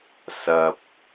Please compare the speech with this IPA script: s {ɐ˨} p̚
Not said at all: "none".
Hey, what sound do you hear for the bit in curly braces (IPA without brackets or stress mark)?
ɐ˨